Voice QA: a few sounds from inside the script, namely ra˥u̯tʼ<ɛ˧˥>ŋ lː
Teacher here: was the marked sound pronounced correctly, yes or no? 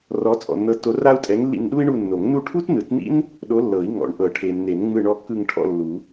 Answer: yes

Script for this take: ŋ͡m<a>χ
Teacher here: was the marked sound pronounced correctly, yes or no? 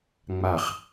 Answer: yes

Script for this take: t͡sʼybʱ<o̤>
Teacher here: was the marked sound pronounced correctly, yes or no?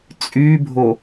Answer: no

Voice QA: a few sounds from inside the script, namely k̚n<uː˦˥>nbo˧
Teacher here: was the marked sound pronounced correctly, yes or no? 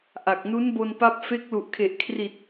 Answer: no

